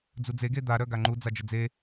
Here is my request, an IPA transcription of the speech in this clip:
d͡z u d͡z e ɡ e d̪ a ɾ œ ɡ a ŋ͡ǃ u d͡z a d͡ʒ ə d͡z e

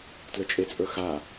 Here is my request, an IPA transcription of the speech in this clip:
t l ə t͡ʃʼ e t͡sʼ ə˞ x a

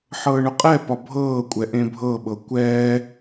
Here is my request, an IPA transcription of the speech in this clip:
ħ ɤː ɳ ʊ qʼ ɛ p ɒ bʱ ɤː kʷʼ ɛ ʔ ẽ bʱ ɤ ɓ ɤ kʷ ɛː

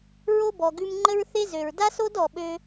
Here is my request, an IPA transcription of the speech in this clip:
ɹ o˥ b ɔ˨ ɡ ʉ˦ m ŋ͡ǃ ə˦ ɹ θ e˦ z ø˨ ɹ d a˥ s o˥ d ɔ˨ ɓ ø˦

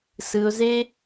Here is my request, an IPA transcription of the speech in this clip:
s ɯ˧ ʊ̯ z e˦

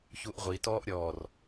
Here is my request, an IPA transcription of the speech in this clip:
ç u ʔ ʁʷ i t ɔː ʔ ɾʲ ɔː r

